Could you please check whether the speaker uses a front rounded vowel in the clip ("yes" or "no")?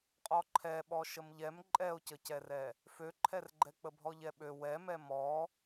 yes